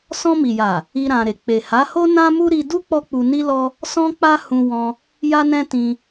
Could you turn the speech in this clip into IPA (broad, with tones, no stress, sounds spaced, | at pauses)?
s ɔ̃˧ m i˨ j a˨ | i˦ ɾ ã˧ ɾ e˨ k͡p e˨ h a˨˦ h o˦ n ã˦ m u˦ ɾ i˧ d u˦ k͡p ɔ˦ k͡p u˧ n i˦ l ɔ˦ | s ɔ̃˦ k͡p a˦ h ũ˧ w ɔ̃˧ | j a˦ n ɛ̃˦ t ĩ˧